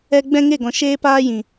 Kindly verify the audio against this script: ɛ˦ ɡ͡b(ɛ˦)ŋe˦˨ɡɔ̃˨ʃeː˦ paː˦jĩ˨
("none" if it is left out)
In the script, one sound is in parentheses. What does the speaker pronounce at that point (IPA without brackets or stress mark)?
ɛ̃˦